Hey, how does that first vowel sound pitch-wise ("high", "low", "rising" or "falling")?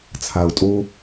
low